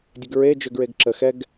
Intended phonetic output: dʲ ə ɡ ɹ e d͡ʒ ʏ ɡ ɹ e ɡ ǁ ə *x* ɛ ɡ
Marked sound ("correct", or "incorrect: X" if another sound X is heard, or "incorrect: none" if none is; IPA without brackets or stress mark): correct